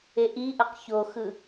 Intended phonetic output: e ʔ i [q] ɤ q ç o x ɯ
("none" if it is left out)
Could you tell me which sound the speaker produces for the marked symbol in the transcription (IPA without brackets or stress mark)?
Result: ʔ